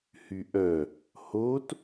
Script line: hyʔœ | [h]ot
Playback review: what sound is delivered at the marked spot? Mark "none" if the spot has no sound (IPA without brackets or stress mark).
h